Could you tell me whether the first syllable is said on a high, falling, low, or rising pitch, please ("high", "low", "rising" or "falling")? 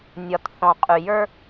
low